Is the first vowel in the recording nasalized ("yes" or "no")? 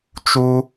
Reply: no